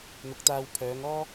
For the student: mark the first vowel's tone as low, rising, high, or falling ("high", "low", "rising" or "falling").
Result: rising